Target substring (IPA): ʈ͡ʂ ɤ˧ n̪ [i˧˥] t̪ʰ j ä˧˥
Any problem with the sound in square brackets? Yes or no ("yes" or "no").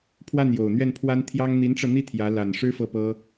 yes